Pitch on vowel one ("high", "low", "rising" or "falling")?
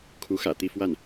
rising